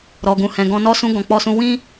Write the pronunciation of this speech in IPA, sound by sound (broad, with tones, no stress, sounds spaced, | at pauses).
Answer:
ɾ ɔ˨ ɡ ũ˨ h ɛ̃˨ ɡ ɔ̃˧ n ɔ˦ s ũ˦ ɡ ɔ̃˧ k͡p ɔ˧ s ũ˧ w ĩ˦